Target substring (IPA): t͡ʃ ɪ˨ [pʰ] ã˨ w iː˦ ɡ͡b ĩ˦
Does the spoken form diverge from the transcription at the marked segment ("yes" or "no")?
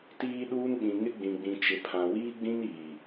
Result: no